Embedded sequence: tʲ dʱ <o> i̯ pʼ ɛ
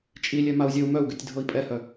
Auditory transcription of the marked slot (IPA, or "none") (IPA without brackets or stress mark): ɤ